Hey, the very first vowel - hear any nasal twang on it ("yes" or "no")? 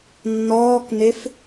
no